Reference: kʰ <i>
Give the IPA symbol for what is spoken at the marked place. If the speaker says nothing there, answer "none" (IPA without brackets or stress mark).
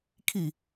i